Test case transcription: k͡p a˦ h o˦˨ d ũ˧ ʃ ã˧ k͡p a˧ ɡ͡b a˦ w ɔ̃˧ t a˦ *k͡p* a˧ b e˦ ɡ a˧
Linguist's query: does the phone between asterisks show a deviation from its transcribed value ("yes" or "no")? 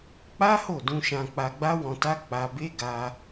no